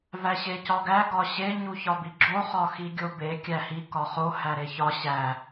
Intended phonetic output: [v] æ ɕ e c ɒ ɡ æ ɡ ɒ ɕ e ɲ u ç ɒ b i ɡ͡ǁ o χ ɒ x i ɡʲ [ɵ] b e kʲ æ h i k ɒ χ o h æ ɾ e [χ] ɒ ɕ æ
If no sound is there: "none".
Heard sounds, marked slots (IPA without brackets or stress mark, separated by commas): v, o, ç